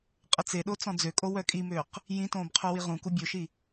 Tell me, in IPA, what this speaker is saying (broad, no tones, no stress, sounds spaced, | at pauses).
qʼ ə t͡s e ɗ o t͡s ɔ̃ d͡z ø kʼ o w œ kʼ i m øː q | j ĩ t õː b qʰ u w i ʁ ũ k u bʲ o ʃ i